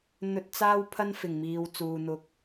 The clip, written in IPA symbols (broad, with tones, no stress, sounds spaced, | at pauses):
n̪ ɵ˧ t̚ t͡s aː˥ w pʰ ɐ˥ n f ɪ˨˩ ŋ m iː˨ w t͡s uː˨ n̪ ʊ˧ k̚